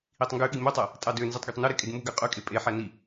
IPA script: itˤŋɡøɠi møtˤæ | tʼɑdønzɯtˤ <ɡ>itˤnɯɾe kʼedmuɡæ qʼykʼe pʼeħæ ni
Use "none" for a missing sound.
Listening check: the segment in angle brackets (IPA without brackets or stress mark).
ɡ